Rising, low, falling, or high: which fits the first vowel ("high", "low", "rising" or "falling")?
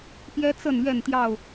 high